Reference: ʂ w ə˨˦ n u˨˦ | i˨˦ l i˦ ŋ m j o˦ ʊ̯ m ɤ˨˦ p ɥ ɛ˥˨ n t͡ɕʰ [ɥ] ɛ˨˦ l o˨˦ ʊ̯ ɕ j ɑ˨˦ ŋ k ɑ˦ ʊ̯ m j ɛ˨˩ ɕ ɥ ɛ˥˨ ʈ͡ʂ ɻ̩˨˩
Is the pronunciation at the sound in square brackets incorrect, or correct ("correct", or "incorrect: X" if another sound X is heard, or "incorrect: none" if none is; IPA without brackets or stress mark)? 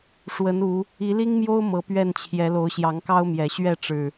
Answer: incorrect: j